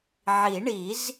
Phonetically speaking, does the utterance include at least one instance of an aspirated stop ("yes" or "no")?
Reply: no